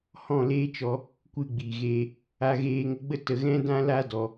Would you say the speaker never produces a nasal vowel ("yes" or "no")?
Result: no